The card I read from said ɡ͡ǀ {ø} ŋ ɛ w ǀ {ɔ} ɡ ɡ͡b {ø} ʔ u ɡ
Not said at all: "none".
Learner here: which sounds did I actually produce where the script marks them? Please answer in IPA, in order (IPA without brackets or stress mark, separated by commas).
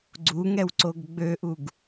u, o, ø